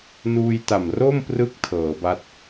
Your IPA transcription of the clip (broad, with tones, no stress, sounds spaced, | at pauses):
n uː˧ j t a˨˩ m r o˥˩ m p r ɯ˦˥ k̚ tʰ ɤː˩˦ b a˥˩ t̚